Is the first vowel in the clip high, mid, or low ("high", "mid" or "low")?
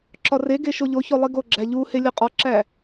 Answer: low